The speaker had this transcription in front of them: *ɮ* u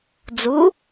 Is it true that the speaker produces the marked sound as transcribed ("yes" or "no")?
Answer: no